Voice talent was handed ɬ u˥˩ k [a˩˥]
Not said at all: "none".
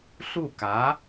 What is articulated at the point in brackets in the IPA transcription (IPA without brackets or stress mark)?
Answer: a˩˥